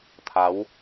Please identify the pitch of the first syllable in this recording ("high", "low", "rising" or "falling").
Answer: rising